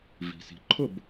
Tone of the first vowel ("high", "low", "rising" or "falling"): low